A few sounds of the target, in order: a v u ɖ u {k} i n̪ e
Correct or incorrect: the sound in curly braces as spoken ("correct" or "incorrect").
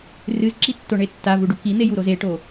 correct